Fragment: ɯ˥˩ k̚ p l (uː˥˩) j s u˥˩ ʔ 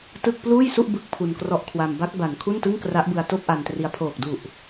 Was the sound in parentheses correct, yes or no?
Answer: yes